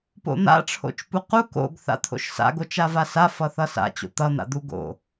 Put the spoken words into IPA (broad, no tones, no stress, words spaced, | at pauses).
po̰n̪a̰ ʈ͡ʂʰo̰t͡ʃpuqu ko̰ɡ θa̰t̪ʰo̰ʃsa̰ ɡot͡ʃavasa fʌθʌsa̰ t͡ɕo̰t̪ʌ n̪a̰d̪uɡo̰